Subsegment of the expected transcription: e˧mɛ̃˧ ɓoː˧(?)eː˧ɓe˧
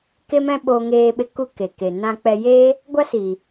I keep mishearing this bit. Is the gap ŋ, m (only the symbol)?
ŋ